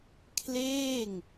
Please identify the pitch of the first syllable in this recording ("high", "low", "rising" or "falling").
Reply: falling